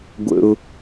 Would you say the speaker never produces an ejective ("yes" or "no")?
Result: yes